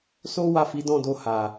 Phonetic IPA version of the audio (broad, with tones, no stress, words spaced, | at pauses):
so˦ wa˦˨fi˨˦dɔ̃˦˨do˧ ha˨